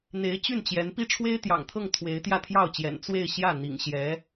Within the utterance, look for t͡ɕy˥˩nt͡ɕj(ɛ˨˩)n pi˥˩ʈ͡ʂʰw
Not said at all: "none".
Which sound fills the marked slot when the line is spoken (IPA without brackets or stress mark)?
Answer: ɛ˧˥